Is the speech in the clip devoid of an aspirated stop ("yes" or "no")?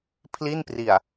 no